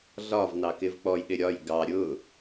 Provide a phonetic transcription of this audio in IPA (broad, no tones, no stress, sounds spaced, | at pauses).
ɮ ɒ v n ɑ k ɪ v k͡p ɔ j ɗ ɪ ɾʲ ɒ j ɡ ɑ ɾʲ ʊ